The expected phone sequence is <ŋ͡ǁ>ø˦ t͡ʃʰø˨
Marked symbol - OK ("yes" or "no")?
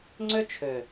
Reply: no